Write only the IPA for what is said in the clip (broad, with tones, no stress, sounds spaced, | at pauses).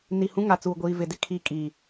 n i˨ h ũ˦ ŋ a˨ t͡s uː˨ ɡʷ iː˨ v ɪ˨ d ɪ˦ kʰ i˦ kʼ i˨